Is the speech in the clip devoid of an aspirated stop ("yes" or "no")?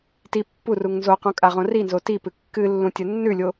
yes